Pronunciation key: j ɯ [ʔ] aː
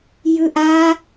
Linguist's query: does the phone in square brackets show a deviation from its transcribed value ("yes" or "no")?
no